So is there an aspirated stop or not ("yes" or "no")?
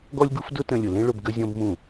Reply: no